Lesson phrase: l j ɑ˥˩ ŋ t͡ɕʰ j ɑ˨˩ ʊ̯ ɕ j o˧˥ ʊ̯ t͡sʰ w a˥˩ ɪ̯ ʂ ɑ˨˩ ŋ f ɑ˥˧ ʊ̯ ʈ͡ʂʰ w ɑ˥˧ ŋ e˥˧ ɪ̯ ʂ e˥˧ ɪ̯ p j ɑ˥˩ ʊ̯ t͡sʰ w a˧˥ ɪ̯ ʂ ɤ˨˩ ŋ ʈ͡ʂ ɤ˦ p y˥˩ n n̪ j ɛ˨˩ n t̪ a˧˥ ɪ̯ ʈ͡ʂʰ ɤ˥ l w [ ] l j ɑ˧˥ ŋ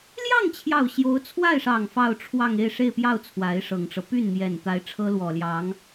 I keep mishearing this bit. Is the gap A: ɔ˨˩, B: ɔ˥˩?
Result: A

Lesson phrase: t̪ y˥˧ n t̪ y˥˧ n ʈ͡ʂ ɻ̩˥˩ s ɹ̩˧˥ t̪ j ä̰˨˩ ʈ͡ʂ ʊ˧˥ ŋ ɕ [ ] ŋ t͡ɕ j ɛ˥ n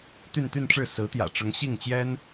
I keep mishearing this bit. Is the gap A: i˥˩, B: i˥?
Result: A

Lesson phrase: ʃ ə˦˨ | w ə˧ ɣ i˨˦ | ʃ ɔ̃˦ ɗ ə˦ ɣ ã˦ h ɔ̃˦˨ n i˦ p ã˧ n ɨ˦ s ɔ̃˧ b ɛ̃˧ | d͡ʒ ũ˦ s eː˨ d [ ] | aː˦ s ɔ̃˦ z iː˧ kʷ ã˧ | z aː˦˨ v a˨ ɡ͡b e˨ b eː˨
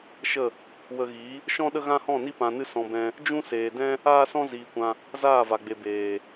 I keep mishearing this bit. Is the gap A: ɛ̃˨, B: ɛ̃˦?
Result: B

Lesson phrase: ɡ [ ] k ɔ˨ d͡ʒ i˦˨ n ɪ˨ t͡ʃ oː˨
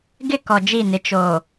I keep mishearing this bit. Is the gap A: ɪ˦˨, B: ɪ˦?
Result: A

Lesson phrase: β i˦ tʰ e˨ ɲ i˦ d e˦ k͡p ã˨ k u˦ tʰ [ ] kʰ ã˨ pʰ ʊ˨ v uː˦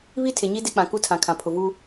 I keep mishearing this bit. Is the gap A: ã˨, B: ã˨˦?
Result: A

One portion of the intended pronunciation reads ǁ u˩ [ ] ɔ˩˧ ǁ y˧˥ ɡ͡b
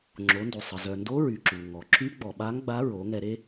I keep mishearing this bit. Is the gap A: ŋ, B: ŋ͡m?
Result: A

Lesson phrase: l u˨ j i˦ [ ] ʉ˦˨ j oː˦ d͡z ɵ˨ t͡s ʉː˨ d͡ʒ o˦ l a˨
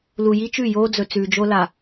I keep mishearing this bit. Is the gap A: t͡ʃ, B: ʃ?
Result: A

